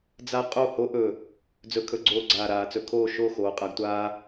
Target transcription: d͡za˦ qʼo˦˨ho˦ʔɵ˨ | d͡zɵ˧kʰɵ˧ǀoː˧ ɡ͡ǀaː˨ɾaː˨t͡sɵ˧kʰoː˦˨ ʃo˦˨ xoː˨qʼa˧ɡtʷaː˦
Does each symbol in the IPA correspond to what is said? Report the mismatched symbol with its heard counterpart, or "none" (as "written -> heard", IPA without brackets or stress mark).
ǀ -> ɡ͡ǀ